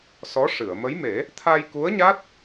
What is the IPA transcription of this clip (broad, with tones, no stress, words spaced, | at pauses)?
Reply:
sɔ˧˥ ʂɨ˨˩˨ə̯ mə˧˥jme˨˩˦ | t̪ʰa˧jku˧˥ə̯ ɲa˦˥t̚